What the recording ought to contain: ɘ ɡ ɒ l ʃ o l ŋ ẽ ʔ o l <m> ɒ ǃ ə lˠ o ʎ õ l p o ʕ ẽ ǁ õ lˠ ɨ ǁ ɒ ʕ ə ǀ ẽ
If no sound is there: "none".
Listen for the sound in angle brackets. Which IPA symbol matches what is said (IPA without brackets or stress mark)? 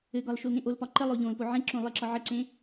p